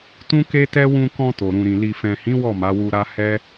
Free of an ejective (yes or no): yes